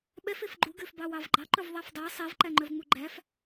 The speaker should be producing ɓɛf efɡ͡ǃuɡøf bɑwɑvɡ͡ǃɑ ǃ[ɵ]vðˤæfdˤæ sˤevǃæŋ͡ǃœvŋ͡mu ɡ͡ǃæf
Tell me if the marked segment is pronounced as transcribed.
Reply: yes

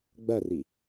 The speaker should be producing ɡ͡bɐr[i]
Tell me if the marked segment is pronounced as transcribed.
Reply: yes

